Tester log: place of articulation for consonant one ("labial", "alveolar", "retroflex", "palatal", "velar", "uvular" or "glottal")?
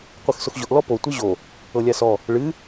uvular